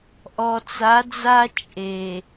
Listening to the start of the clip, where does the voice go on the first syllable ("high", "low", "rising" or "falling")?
low